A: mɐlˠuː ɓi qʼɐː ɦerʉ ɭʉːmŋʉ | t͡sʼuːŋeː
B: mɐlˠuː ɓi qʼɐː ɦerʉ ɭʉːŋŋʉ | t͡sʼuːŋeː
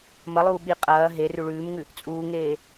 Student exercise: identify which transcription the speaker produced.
A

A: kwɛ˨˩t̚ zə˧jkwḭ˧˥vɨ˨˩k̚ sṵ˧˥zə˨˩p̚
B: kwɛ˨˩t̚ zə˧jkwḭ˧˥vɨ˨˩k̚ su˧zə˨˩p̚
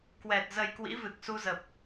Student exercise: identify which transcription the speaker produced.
B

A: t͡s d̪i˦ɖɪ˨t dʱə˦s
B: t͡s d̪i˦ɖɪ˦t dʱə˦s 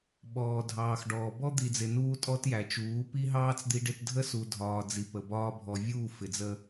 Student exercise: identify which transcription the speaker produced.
B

